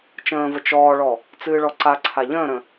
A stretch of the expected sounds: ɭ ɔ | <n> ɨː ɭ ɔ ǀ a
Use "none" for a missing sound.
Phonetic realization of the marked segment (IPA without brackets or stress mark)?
t͡s